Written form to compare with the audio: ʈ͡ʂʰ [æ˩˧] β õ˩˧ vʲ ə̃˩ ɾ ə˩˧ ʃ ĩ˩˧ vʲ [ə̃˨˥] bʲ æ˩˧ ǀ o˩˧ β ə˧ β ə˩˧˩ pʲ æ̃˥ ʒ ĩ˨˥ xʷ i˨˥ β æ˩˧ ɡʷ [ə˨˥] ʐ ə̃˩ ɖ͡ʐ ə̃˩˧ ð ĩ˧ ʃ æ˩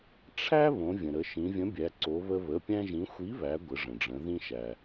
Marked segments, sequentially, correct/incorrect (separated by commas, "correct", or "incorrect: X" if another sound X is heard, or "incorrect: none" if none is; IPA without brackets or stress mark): incorrect: æ˥, correct, incorrect: ə˩˧